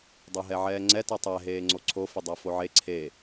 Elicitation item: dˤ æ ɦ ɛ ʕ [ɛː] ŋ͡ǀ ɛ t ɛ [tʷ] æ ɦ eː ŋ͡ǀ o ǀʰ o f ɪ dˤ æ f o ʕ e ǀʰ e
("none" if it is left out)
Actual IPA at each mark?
ɛː, tˤ

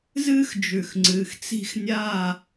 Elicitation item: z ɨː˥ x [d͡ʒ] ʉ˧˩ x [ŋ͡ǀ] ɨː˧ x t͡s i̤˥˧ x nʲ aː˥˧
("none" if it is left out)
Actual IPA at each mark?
d͡ʒ, ŋ͡ǀ

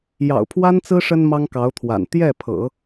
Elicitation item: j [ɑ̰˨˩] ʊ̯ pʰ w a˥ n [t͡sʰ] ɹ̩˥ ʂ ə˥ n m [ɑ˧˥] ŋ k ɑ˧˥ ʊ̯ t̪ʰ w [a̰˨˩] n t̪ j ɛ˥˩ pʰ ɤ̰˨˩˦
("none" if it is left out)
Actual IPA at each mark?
ɑ̰˨˩, t͡s, ɑ˥, a̰˨˩

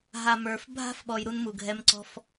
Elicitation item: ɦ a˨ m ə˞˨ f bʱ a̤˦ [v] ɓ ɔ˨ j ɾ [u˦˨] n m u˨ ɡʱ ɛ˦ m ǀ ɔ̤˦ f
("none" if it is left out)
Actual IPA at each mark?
f, u˦

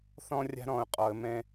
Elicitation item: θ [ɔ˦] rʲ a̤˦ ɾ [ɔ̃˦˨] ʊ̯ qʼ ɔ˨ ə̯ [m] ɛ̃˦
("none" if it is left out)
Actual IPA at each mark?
ɔ̃˦, ɔ̃˨, m

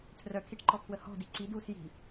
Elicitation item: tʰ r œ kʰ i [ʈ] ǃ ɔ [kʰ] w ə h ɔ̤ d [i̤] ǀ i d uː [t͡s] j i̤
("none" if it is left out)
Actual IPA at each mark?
ʈ, kʰ, i, s

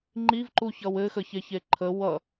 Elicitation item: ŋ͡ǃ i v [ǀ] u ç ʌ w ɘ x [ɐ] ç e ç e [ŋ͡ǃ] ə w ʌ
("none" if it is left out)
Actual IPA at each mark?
ǃ, ə, ǃʰ

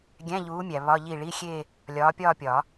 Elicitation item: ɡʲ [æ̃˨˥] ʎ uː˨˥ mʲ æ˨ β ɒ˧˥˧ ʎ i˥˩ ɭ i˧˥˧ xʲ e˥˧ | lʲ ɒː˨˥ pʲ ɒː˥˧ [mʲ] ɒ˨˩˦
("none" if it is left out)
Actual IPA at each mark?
æ̃˧˥˧, pʲ

